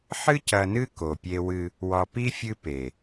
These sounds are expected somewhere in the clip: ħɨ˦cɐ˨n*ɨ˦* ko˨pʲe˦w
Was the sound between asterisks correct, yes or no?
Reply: yes